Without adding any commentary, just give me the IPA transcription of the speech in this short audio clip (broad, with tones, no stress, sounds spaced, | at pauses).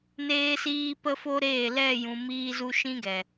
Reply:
n eː˦ s iː˦ p ə˦ f o˦ ɾ eː˦˨ l ɛ˦˨ j ũ˨ m iː˧ z u˧ ʃ ĩ˦ ɡ ɛ˨